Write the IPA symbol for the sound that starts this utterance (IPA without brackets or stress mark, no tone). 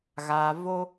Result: ɣ